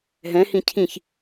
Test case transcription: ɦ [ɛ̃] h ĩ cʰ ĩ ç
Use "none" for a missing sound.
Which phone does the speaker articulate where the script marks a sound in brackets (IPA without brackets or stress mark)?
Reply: ɛ̃